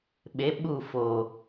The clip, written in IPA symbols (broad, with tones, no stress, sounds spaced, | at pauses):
ɓ e˨˦ ɓ u˦˨ f oː˨